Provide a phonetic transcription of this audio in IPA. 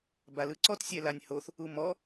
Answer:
b a l ɯ ǀ ɔ t sʲ ɛ l a nʲ h o θ | u m ɔ

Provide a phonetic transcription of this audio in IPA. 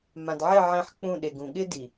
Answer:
m ã˨ d ʕ ɪ˦˨ ʕ ɛ̃˦ ħ k͡p ũ˦˨ ɗ e˨ ɡ ũ˨ ɠ ɪ˦ d i˨

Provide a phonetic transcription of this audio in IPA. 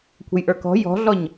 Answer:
kʷʰ ə̤ j ʔ ə˞ k ɔ̤ j ɔ̤ ɮ ɔ ɲ

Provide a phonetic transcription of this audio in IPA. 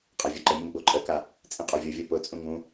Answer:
qʼ a vʲ ɒ ǃ ə mʲ ũ ɡ͡b o ǃʼ ə k a | t͡sʼ ĩ qʼ o vʲ o vʲ o p ʊ t͡sʼ ũ ŋ ũ

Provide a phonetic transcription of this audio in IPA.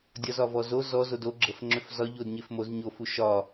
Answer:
dʲ ɒ z ɒ v ɔ z o z ɔ z o d o ɡ͡ǁ ə f ŋ͡ǁ ʏ f z ɒ ʎ o d ɲ e f m o z ɲ o f u ʃ ɒ

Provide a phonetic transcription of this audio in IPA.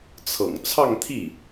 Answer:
t͡sʰ ɤ̰˨˩ ŋ t͡sʰ ɑ˥˧ ŋ t̪ʰ i˥˩

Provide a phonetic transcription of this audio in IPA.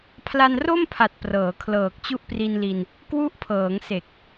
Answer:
pʰ l a˧ n r o˥˩ m pʰ a˨˩ t̚ p r ɤː˩˦ kʰ l ɤː˨˩ k̚ t͡ɕ u˦˥ ʔ p r i˧ n l i˧ n | k w u˦˥ ʔ pʰ ɤː˩˦ ŋ s e˨˩ k̚

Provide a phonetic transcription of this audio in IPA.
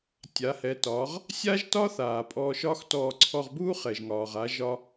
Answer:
tʲ a˩˧ h ɛ˩˧ t ɒː˩˧ ʁ | sʲ a˥ ʒ t ɒ˥ θ aː˩ pʼ ɔ˧ ʃ ɒː˥ x t ɔː˧ ǀʰ ɔ˧ ʁ b uː˥ χ ɛ˩ ʒ ŋ ɒː˩ ʁ a˩˧ ʒ ɒ˧

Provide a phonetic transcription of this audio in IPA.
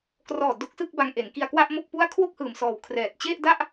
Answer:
k r ɔː˨˩ d o˦˥ k̚ s ɯ˥˩ k̚ b a˧ ŋ ʔ e˩˦ n k i˧ a̯ k w a˥˩ ʔ m o˥˩ k̚ p u˥˩ a̯ kʰ w o˥˩ k̚ h ɯː˨˩ m s ɔː˨˩ w kʰ r ɛː˨˩ t̚ t͡ɕ e˥˩ ʔ d a˥˩ ʔ

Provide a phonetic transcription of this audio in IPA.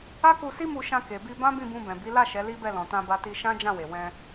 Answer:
a˦ k u˧ s i˦ m u˧ ʃ ã˧ k e˨ b i˧ b ã˦ b ĩ˦˨ b ũ˧ b ɛ̃˨ b i˨˦ l a˦˨ ʃ ɛ˨˦ l i˦ b ɛ˦˨ l ɔ̃˨ t ã˧ b a˧ t i˧ ʃ ã˦ d͡ʒ ã˦˨ w e˨ w ɛ̃˧

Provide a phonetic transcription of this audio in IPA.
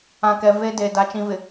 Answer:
ã˨ k ɛ˨ v e˦ d eː˨ d a˨ t͡ʃ ĩ˨ v ɪ˨

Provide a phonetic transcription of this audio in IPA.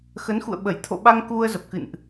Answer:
x ə˨˦ n x ṵ˧˨ ə̯ ɓ ə˧˩ j t̪ʰ o̰˧˨ ɓ a˧ ŋ k u˧ ə̯ z ə˨˩ p̚ k ɨ̰˧˨ n ʔ

